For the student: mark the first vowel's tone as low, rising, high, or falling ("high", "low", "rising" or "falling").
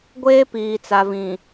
high